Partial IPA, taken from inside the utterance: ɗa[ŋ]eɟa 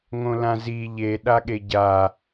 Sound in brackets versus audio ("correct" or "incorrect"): incorrect